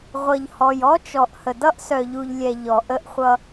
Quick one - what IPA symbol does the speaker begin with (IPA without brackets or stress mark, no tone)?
ʁʷ